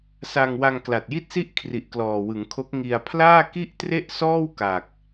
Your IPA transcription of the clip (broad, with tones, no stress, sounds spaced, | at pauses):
s a˧ ŋ w a˧ ŋ k l a˨˩ t̚ j i˥˩ t̚ s i˥˩ ʔ kʰ r i˨˩ ʔ k l ɔː˨˩ w ɯ˩˦ ŋ kʰ o˦˥ k̚ ŋ i˧ a̯ pʰ l aː˥˩ k i˥˩ ʔ t r e˥˩ ʔ s ɔː˥˩ w k a˨˩ k̚